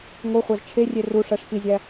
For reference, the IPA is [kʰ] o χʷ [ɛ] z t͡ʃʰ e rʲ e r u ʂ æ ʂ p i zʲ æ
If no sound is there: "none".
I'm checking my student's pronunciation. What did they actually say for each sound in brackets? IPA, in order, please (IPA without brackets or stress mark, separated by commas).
ŋ, æ